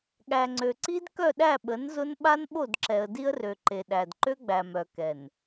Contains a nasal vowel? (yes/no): no